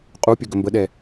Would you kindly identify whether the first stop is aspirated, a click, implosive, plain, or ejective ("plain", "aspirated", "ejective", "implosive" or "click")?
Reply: ejective